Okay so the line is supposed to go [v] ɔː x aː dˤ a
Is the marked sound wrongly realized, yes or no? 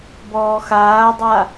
yes